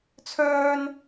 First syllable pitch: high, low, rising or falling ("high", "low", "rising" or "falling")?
high